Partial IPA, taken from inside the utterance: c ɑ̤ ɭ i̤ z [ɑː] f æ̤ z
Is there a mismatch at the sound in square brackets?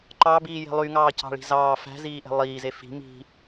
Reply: no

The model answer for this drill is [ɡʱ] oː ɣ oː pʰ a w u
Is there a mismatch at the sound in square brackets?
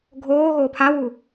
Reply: no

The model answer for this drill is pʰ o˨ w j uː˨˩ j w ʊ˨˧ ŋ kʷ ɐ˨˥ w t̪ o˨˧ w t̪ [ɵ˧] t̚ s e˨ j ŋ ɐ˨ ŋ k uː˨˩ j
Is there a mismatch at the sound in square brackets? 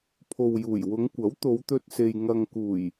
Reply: no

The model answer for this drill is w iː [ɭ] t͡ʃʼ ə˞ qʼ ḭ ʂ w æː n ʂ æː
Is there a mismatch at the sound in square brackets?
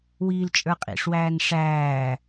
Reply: yes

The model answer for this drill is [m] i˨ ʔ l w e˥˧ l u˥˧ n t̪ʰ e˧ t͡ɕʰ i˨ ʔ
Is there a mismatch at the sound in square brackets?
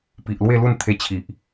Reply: yes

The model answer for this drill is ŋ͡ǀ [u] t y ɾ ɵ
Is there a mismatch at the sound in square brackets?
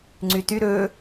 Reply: yes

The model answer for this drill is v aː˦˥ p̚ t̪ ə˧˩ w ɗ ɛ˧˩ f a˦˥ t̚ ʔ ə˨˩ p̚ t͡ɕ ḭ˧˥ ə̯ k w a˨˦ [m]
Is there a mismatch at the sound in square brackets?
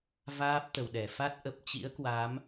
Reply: no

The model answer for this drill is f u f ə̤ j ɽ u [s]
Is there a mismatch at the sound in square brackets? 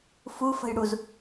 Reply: yes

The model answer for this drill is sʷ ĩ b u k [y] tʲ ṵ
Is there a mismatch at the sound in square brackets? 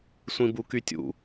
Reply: no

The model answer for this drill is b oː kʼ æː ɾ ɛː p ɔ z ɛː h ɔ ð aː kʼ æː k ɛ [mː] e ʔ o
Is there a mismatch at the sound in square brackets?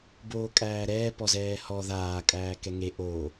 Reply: yes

